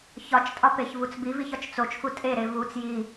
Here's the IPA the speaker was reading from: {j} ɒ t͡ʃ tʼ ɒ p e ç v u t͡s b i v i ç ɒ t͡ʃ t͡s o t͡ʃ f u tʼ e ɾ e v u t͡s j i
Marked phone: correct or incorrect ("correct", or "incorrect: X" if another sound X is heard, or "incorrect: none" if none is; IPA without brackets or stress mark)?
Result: incorrect: ç